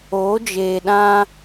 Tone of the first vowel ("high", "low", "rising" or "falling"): rising